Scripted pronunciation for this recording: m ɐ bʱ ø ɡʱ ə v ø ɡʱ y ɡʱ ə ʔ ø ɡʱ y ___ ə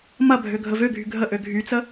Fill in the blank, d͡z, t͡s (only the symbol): t͡s